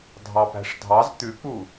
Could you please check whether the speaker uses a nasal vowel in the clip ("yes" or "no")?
no